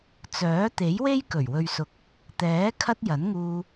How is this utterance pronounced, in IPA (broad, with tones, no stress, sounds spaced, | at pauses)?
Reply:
t͡s œː˨˥ t̪ e˨˥ j w e˥ j k ɵ˨˩ ɥ w ɵ˨ ɥ s ʊ˨˥ k̚ | t̪ ɛː˨˥ kʰ ɐ˥ t̚ j ɐ˨˥ n ŋ uː˧